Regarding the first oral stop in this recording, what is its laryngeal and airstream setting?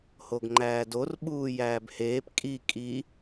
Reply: plain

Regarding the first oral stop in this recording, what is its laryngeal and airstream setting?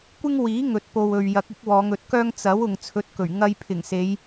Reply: plain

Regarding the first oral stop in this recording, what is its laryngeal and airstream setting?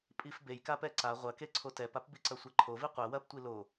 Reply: ejective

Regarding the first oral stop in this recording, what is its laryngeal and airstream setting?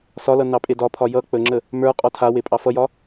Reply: ejective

